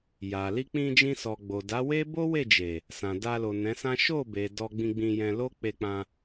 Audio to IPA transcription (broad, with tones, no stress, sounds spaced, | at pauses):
j a˨ l i˧ k͡p ĩ˧ d͡ʒ ĩ˧ s ɔ˨ ɡ͡b o˨ d a˨˦ w e˦ b o˦ w e˦˨ d͡ʒ e˨ | s ã˨ d a˧ l o˨ n ɛ̃˨˦ s ã˦ ʃ o˦˨ b e˨ d ɔ˧ ɡ͡b ĩ˧ ɡ͡b ĩ˧ j ɛ̃˧ l o˦ k͡p e˧ k͡p ã˧